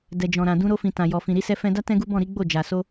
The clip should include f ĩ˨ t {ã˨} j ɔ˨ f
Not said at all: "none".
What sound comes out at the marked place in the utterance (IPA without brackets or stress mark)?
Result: ã˨